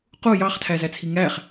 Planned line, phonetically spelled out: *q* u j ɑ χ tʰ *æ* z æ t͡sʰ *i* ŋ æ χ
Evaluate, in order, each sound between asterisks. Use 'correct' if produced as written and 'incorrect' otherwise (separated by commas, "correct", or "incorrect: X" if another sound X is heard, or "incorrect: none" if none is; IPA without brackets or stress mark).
correct, correct, correct